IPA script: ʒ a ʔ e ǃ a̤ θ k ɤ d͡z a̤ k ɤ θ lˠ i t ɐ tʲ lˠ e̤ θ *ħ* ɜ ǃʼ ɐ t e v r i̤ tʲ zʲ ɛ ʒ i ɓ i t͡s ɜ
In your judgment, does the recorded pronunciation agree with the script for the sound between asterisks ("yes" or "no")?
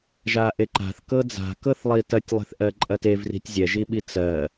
no